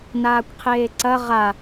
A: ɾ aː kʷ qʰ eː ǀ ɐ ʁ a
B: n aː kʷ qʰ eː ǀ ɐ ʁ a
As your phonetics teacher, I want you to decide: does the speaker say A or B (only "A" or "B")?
B